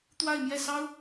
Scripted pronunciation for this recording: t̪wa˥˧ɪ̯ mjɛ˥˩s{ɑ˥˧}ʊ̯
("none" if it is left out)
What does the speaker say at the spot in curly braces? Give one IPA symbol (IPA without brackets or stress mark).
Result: ɑ˥